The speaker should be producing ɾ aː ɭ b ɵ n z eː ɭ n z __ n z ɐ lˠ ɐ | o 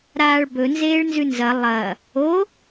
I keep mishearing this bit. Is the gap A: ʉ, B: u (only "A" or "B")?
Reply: A